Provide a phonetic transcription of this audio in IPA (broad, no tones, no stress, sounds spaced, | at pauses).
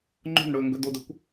ŋ͡ǃ o̤ n ɽ ɵː ŋ ɡ ɵ d o d ɵ kʷ